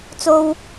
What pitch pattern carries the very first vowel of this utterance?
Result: high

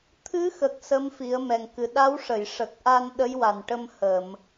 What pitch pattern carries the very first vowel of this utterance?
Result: rising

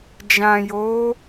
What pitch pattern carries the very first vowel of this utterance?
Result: low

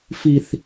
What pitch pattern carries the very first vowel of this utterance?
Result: low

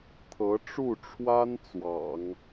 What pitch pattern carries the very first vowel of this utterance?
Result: rising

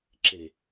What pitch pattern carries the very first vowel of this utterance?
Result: low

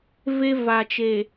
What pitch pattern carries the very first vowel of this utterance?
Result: high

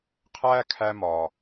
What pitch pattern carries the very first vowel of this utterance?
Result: high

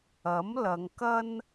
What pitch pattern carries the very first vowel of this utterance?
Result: rising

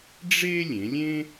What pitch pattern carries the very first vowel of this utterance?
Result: high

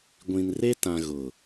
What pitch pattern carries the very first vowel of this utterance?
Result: low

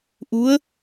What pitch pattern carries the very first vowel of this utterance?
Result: rising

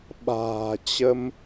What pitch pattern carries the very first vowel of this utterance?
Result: low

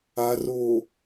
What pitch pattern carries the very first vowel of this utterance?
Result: low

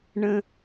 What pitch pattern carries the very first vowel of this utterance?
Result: high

